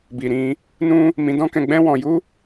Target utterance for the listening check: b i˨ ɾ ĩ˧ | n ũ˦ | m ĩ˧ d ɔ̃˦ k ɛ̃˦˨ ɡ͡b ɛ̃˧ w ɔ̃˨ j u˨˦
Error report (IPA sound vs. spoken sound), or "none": none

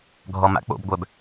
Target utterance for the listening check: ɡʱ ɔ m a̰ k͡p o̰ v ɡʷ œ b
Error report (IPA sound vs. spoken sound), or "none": v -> b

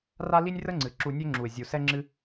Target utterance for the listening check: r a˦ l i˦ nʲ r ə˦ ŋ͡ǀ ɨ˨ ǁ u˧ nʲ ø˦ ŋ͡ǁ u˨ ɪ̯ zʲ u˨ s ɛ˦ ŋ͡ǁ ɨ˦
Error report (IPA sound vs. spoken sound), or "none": none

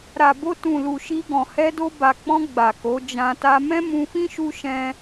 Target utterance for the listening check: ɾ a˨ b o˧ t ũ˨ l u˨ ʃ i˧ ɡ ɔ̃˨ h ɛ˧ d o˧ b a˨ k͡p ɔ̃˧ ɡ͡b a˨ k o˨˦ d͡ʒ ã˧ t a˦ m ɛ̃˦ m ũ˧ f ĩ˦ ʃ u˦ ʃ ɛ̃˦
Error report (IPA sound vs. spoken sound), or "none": none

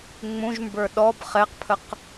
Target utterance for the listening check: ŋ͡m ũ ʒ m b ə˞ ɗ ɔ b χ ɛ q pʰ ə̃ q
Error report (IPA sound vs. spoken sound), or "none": ə̃ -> ə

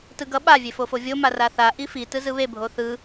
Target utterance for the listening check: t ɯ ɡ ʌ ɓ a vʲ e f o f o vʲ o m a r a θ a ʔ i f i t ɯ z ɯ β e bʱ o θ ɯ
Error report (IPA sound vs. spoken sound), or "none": none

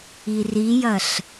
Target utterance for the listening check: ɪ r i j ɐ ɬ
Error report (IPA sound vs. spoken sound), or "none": ɪ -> i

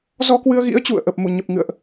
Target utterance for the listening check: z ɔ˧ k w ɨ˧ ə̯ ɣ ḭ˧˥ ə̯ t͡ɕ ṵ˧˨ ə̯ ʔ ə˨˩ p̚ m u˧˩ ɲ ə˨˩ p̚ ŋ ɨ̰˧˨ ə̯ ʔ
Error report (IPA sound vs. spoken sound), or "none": none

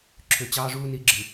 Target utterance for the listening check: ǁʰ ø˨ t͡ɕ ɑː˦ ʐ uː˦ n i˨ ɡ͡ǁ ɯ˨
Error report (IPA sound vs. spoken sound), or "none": none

